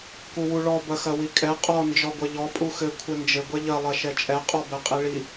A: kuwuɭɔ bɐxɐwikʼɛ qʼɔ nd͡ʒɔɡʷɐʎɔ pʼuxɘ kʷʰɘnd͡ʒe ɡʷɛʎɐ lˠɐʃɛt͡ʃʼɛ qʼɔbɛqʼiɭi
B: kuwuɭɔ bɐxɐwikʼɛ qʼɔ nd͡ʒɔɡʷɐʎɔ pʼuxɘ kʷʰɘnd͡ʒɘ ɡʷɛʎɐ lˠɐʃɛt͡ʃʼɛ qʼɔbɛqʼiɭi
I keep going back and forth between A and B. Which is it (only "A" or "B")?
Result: B